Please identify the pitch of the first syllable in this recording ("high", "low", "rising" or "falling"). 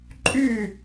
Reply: falling